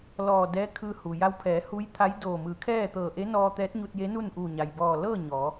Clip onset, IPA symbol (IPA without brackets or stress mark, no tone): l